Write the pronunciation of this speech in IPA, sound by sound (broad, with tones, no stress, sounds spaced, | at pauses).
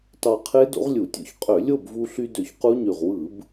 t ɑ˧ qʰ e˦˥ d o̰˦˥ ʁ lʲ u˧˩˧ tʲ o̰˦˥ ç qʼ ø˧˩˧ lʲ o˥˨ b v u˧ ɬ y˧ d ø˧˩ ç q u˦˥ ɲ y˧˩ ʁ w ɯ˧˩˧ b